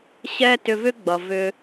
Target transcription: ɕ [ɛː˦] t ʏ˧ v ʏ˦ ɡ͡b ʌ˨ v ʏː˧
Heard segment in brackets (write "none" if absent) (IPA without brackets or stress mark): ɛː˦